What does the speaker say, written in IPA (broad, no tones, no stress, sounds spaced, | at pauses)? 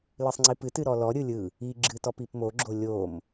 l ɨ sˤ ŋ͡ǀ i p ɨ t ɨ ɾ ɔ l ɔ ɾʲ ɯ lʲ ɯ | i ɡ͡ǁ ɨ t ɔ p i p m o ɡ͡ǁ o lʲ o m